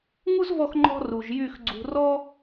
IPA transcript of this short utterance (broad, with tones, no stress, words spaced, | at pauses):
ŋu˦zvɔ˧xŋ͡ǃɔ̤˧ ru˨ʒjy˦˨x ɡ͡ǀṳ˨rɔ˦